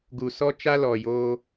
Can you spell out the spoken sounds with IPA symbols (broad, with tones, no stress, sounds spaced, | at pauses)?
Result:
ɡ u˨ s ɔ˦ t͡ʃ a˦ l ɔ˨ j oː˧